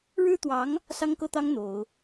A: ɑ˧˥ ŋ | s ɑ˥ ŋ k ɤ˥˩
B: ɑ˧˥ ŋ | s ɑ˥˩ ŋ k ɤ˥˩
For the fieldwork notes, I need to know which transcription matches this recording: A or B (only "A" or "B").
A